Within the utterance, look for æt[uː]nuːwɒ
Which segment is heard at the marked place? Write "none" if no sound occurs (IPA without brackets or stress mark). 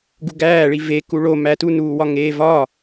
u